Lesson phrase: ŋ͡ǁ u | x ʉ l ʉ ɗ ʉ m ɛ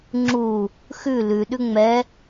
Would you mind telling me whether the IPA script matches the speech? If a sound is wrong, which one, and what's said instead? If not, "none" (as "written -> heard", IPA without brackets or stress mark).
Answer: m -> ŋ͡m